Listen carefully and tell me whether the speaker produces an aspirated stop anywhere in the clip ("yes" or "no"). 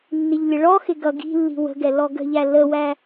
no